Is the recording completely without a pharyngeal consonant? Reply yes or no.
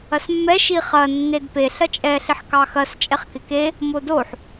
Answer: no